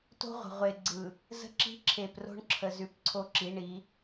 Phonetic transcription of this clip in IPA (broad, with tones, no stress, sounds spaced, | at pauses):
t o̤˦ ʁʷ ə̤˨ ʁʷ e˨ ɡ͡ǀ ɯ˨ | z ə̤˦ ǁ i̤˦ ǁʰ e˨ p r o̤˦ ɳ ǁʰ ə˨ z ʉ˨ p ǀʰ o˦ ǁ i˨˦ ɳ i˨˦